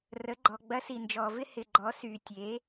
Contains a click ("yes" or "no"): yes